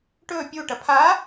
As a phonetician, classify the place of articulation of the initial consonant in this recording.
retroflex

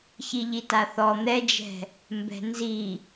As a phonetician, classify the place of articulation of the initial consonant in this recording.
palatal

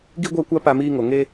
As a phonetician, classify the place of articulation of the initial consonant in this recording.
velar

